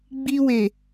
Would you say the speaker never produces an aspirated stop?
yes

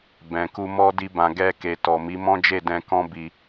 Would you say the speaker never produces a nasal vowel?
no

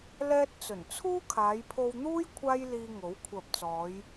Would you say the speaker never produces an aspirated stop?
no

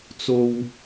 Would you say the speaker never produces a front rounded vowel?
yes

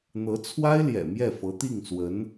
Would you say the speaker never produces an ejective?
yes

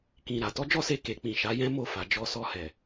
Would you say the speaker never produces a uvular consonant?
yes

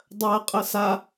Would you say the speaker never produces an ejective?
no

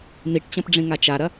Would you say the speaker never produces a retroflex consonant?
no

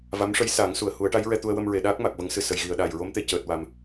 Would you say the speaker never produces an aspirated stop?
yes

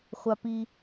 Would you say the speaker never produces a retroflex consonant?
yes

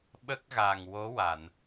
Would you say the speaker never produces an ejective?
yes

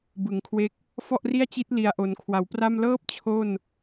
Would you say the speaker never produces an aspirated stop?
no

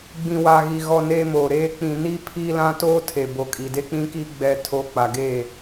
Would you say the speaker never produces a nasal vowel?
no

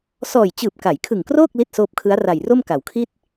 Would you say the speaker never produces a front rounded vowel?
yes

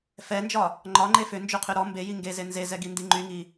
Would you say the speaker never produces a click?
no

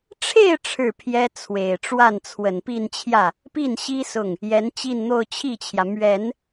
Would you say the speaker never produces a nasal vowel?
yes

